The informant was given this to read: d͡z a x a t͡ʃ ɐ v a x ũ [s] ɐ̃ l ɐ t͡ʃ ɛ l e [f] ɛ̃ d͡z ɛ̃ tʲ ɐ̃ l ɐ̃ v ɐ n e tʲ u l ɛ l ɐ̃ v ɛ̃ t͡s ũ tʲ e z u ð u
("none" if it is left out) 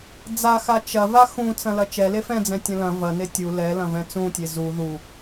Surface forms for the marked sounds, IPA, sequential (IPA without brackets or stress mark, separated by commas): t͡s, f